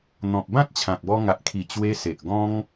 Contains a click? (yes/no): no